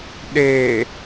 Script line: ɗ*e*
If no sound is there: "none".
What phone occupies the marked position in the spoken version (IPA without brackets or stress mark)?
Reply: e